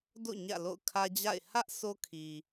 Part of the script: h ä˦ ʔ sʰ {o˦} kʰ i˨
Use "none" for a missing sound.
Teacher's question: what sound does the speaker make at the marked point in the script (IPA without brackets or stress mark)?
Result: o˦